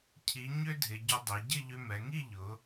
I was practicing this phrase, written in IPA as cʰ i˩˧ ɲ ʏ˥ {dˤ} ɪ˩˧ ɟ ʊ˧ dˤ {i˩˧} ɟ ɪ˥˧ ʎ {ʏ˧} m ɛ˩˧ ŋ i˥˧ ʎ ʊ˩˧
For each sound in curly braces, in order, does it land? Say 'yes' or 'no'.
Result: no, yes, yes

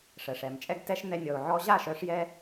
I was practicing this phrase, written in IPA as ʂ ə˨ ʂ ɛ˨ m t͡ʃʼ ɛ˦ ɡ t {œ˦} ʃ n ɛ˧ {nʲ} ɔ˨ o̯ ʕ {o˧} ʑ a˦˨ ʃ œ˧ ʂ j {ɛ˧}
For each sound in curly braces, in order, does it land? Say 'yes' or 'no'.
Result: no, yes, no, yes

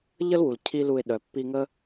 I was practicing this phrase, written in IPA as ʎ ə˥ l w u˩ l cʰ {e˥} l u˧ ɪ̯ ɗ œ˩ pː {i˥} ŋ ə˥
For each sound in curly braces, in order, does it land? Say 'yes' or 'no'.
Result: no, no

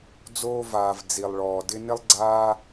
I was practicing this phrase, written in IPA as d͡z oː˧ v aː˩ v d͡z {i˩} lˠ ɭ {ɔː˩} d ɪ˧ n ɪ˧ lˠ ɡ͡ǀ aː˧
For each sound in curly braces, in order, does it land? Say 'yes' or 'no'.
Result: yes, yes

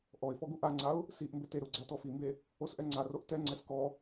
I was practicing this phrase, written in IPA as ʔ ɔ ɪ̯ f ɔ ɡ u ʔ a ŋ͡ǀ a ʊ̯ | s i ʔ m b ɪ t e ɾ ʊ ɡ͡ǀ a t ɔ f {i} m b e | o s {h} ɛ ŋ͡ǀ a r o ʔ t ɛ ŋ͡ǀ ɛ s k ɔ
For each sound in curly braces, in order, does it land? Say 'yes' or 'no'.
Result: yes, no

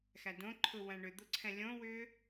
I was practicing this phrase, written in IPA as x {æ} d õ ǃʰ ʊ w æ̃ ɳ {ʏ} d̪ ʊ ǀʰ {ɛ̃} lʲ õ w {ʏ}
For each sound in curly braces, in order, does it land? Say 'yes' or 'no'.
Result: yes, yes, yes, no

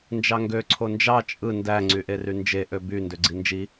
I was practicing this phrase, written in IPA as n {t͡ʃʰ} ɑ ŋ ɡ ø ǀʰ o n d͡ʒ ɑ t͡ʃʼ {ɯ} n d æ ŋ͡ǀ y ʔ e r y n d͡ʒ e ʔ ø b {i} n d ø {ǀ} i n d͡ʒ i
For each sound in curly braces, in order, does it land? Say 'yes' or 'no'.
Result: no, yes, no, no

